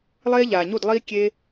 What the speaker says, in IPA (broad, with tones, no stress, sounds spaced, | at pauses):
lˠ eː˦ ʎ aː˨ ɲ u˦˨ d lˠ iː˦ kʲ eː˦